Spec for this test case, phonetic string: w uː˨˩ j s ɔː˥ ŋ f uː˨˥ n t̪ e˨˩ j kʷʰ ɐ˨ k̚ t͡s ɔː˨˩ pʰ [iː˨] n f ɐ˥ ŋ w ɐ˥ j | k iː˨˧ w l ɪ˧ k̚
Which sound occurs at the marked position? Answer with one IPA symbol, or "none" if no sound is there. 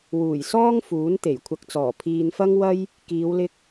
iː˨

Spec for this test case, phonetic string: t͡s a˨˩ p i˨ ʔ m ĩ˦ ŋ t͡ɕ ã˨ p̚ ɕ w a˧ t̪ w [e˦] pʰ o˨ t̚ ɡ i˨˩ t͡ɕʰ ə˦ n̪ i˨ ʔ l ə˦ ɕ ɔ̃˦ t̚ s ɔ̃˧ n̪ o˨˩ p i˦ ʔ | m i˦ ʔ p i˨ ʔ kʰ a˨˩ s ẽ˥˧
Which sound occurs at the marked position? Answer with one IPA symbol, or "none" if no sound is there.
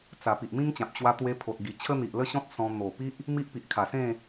e˧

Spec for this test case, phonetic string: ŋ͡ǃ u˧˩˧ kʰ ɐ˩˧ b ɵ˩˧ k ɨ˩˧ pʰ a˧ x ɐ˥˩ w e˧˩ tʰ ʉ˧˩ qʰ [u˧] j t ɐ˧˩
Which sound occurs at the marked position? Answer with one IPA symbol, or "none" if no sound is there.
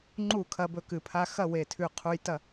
u˧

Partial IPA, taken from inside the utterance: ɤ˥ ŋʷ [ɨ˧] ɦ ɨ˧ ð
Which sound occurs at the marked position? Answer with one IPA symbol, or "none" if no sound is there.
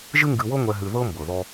ɛ˧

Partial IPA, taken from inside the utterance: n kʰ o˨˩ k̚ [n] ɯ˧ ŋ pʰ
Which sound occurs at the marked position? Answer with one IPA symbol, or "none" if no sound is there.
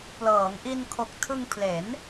tʰ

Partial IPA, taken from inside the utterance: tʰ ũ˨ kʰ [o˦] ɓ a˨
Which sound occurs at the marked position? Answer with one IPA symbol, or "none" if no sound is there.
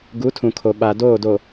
o˨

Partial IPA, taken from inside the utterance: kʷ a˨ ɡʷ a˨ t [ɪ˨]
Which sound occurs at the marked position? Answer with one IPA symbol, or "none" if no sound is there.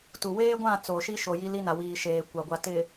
ɪ˨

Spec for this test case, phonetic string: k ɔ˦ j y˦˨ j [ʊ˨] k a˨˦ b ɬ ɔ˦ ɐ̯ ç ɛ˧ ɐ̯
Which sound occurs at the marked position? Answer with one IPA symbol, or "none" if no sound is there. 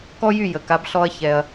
ə˨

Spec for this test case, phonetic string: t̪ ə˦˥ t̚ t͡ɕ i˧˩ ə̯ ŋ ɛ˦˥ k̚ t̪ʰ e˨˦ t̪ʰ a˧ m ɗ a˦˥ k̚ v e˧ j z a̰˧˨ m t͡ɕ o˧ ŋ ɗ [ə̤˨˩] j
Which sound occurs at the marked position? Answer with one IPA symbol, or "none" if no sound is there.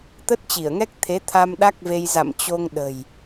ə̤˨˩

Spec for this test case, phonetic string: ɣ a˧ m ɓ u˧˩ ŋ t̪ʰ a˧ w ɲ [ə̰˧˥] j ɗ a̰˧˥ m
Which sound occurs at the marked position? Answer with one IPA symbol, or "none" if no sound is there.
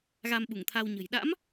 ə̤˨˩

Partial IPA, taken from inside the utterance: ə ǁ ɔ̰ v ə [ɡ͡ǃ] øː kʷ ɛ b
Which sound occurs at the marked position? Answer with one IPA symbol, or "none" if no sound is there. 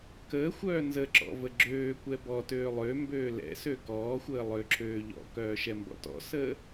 ɡ͡ǁ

